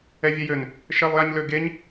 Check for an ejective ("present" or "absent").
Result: absent